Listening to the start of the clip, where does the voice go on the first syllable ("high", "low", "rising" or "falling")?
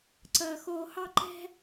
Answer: low